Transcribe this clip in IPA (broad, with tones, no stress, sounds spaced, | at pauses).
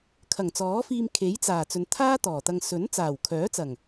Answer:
kʰ ɐ˨˩ ŋ t͡s ɔː˨˥ f iː˧ m kʰ e˨˥ j t͡s aː˨˩ t͡s ɵ˨ n t̪ʰ aː˥ t̪ ɔː˨˩ t̪ ɐ˧ ŋ s ɵ˨˥ n t͡s aː˨˩ w kʰ œː˨˥ t͡s ɐ˨˩ ŋ